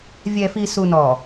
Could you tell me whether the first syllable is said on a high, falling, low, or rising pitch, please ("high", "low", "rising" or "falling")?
low